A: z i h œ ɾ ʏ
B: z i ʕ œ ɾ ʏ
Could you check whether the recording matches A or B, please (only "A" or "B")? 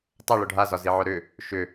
B